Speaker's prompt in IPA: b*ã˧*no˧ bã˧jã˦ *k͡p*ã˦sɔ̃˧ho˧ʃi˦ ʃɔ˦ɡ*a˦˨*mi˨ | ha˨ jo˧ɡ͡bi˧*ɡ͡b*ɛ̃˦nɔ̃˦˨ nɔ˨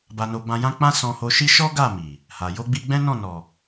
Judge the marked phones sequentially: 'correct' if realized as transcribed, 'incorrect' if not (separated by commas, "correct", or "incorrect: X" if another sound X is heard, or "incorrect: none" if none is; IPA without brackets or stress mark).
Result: incorrect: a˧, correct, correct, correct